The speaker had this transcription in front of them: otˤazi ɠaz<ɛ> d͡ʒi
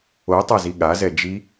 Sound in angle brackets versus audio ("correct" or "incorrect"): correct